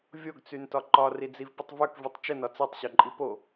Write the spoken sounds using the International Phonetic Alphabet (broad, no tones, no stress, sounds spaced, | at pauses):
vʲ o ɡ t͡s y n t ɒ ǃ ɒ r i d͡z i v p ə tˤ v œ k v y tˤ t͡ʃ ə n ɒ t͡s i tˤ ɕ o ǃʼ i p o